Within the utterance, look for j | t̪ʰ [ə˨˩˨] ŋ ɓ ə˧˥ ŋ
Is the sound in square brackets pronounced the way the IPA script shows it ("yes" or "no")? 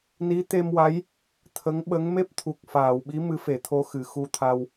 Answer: no